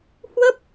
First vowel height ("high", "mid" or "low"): mid